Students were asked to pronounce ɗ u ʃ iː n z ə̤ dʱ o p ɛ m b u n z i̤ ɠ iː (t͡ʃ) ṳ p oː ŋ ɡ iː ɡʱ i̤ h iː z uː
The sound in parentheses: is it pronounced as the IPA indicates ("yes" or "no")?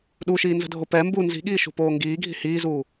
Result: no